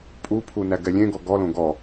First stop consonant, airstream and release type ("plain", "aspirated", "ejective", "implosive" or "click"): ejective